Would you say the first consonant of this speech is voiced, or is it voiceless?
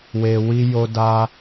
voiced